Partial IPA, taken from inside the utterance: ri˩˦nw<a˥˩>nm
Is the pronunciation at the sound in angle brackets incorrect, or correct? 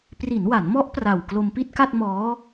incorrect